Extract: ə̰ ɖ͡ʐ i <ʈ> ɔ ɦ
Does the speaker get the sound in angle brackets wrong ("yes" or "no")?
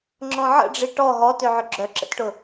no